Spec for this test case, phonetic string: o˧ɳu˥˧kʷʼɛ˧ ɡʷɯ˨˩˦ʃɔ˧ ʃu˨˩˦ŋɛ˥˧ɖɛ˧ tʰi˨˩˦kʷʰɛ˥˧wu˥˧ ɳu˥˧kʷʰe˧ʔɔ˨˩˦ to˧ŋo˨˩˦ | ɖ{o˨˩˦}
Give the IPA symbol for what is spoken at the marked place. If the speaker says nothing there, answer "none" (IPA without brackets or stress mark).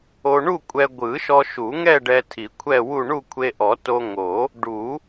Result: u˨˩˦